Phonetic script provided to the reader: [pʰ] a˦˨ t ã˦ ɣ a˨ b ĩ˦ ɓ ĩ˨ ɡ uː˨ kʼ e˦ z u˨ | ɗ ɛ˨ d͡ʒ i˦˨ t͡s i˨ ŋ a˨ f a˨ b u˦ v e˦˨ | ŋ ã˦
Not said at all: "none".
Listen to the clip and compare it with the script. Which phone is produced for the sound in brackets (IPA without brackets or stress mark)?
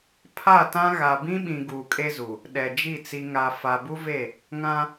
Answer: pʰ